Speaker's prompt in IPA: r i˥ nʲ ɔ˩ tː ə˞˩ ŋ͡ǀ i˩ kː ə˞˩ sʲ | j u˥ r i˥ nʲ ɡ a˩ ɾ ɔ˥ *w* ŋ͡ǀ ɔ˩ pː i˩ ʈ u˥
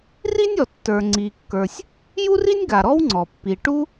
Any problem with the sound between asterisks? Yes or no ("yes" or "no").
no